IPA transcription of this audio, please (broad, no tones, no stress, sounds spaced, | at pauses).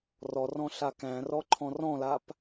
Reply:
r ɔ r ɔ̃ ɬ a k æ̃ r ɔ ǃʰ ɔ̃ r ɔ̃ l a p